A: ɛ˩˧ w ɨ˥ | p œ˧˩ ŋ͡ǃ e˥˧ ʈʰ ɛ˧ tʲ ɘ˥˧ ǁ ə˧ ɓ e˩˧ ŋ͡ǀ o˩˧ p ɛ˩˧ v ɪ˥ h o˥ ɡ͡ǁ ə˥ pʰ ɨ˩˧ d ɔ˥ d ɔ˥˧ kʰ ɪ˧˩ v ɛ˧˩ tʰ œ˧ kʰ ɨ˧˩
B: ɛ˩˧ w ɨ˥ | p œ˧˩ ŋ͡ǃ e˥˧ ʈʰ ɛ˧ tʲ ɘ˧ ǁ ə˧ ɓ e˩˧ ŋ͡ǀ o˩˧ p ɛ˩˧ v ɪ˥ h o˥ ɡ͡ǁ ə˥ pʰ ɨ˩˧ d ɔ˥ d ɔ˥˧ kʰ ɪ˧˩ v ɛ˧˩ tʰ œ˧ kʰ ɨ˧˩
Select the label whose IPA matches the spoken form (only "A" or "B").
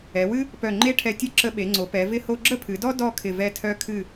A